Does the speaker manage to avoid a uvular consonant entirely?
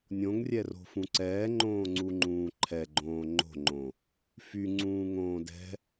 yes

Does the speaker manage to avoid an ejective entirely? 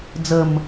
yes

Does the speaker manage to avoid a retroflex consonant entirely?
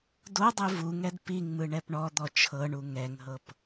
no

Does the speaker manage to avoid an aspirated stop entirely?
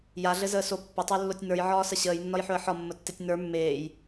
yes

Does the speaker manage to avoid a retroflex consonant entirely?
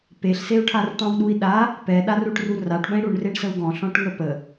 no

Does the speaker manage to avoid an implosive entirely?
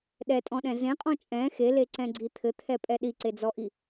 no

